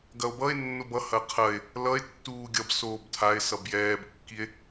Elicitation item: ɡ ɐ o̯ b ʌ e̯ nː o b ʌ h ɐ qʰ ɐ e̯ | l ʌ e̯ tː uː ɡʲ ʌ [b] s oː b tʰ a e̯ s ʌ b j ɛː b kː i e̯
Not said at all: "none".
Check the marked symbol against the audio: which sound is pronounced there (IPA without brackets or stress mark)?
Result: b